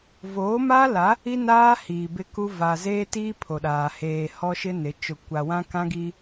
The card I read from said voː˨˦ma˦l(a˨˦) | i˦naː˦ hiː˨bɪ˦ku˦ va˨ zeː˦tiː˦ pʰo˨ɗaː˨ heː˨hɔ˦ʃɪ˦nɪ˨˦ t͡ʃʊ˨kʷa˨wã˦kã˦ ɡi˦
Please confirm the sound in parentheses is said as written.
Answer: yes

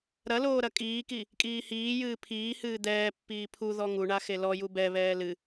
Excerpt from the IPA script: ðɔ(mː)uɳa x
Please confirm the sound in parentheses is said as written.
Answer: no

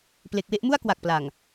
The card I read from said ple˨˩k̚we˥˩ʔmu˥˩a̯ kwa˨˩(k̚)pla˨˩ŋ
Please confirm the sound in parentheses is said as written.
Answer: yes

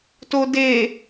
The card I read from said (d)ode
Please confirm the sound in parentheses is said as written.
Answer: no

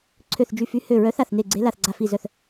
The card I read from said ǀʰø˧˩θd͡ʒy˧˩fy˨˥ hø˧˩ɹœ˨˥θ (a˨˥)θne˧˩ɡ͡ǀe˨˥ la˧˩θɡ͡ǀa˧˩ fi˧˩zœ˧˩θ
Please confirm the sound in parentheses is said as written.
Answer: no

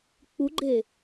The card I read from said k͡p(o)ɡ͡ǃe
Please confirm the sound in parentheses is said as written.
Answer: no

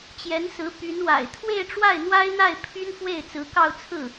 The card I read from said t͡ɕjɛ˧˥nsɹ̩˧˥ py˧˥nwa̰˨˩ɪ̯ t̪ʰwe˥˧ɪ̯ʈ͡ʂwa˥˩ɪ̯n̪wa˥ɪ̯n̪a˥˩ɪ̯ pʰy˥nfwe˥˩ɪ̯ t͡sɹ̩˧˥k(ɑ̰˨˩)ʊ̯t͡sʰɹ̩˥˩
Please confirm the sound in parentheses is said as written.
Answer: no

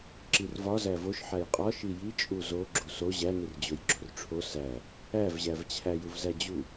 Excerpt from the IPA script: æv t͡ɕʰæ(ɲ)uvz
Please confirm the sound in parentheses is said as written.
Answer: no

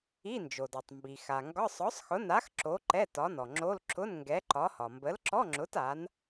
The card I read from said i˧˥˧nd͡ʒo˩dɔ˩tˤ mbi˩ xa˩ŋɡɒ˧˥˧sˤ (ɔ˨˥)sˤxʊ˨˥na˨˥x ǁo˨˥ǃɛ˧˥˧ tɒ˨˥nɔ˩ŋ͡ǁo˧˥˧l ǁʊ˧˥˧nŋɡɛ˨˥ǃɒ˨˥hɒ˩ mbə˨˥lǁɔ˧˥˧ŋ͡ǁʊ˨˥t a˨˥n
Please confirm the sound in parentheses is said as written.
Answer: yes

